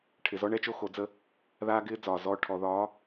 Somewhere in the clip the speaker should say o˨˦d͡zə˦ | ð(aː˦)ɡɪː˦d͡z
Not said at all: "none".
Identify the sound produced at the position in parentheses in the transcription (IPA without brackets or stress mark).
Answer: aː˦